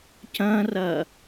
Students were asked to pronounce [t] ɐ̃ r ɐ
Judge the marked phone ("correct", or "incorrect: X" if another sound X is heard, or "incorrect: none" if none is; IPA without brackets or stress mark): incorrect: c